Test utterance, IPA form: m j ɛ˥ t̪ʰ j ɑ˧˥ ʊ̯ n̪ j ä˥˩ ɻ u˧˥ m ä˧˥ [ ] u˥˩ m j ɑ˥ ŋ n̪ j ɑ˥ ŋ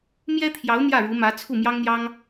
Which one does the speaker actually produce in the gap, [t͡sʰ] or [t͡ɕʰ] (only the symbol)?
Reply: t͡sʰ